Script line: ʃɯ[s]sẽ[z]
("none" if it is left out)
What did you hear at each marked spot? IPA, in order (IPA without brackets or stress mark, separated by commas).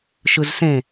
z, none